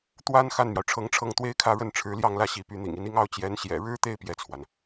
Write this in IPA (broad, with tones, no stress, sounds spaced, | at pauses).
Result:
t̪ w a˥ n x a˥˩ n m j ɑ˩ ʊ̯ ʈ͡ʂʰ ɤ˧˥ ŋ ʈ͡ʂʰ ɤ˥˩ ŋ t̪ w e˥ ɪ̯ kʰ ä˥˧ ɻ ə˥˩ n ʈ͡ʂʰ ɻ̩˧˥ l j ɑ˥˧ ŋ l ä˥˩ ɕ i˧˥ p y˧˥ n̪ ḭ˨˩ ŋ i˧˥ n i˥ ŋ ɑ˥ ʊ̯ t͡ɕ j ɛ˧˥ n ɕ j ɛ̰˨˩ ɻ ɻ̩˥ t̪ e˥˧ ɪ̯ p j ɛ˥˩ t͡sʰ w a˩ n